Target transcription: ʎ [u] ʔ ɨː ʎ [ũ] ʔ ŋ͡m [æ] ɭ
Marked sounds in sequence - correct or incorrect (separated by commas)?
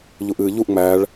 correct, incorrect, correct